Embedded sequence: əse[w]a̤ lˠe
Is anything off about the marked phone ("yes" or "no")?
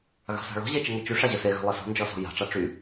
yes